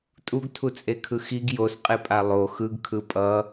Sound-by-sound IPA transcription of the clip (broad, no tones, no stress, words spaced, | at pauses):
tʼuɡtʰut͡sʼekʰɯ xiɡ josqʼepʼa lˠo xɯɡkʰɯ pʼʌ